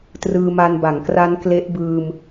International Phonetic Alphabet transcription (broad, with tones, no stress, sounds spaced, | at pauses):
t r ɯː˧ m a˧ n b a˩˦ ŋ k r a˦˥ n k l e˦˥ ʔ b ɯː˧ m